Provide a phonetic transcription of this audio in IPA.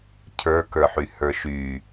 cʰ ə˞ k ə˞ ħ y h ə˞ ʃ y

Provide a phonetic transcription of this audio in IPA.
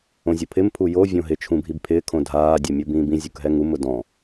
õ zʲ ʊ pʰ ɪ m pʰ u j o vʲ õ ɦ ɪ t͡ʃʰ ũ bʱ i b pʰ ɪː kʰ õ dʱ aː dʲ ɛ mʲ o b ĩː b ĩ zʲ u k ɦ ɛ ŋ u m ʊ d ɔ̃

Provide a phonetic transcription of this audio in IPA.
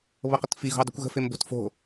β ɤ q ə t f i ɣ o̤ u̯ dˤ i̤ kʷ ɣ ə̤ f e m b o̤ t f o̤

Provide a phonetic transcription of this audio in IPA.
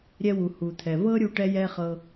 ɾʲ ɛ˧ w u˩ h u˩ t̪ʰ ɛ˩ v ɤ˥ ɾʲ u˧ ʈ ɛ˥ j ɛ˥ χ ɤ˧

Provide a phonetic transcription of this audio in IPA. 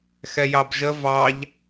x ɛ j ɑ b ʒ ə v ɑ ʎ

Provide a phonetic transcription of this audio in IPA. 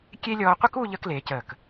kʲ e˥ lʲ ɔː˧ qʷ ə˥ k u˥˧ ʎ əː˧ k l eː˩˧ c əː˧˩ k

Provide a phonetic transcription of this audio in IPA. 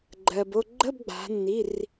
ɡ͡ǃ ɜ˩ b o˥˨ ɡ͡ǃ ə˧˥˧ b ɡ͡b a̤˩˧ nː i˩˧˩ r

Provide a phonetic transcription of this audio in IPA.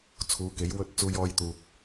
t͡sʰ uː˨˧ k e˨˥ j w ɵ˥ t̚ t͡s uː˧ j ɔː˧ j t̪ uː˨ k̚

